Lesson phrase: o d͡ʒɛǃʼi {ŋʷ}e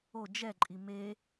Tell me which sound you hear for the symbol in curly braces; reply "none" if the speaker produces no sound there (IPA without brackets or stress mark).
m